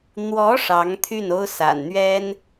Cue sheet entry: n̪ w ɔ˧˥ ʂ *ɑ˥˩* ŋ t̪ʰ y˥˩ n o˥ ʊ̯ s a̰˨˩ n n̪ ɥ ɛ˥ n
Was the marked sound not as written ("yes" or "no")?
yes